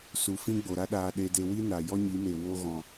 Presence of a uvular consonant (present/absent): absent